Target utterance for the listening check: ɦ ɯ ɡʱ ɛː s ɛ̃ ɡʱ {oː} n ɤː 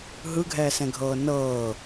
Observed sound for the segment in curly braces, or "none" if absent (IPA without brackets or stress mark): ɤː